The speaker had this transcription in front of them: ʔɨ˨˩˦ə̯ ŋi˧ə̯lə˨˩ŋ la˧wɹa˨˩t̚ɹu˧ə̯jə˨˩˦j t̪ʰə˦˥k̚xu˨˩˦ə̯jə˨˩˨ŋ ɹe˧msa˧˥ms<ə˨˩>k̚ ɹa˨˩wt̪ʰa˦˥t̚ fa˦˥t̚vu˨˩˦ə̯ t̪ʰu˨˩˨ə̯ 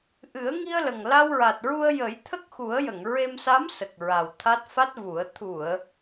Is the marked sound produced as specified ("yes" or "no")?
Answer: yes